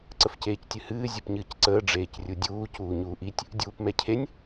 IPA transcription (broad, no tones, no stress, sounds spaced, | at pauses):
ǀ ə f c eː c tʲ ɨ h ɨː zʲ ɨ p ɲ ɨː c ǀ əː ɖ͡ʐ eː c rʲ u dʲ uː c uː ɲ uː ʔ i tʲ | dʲ uː p m ɛ cʰ e nʲ